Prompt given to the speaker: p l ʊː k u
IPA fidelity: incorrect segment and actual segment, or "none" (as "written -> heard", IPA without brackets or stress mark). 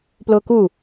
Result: none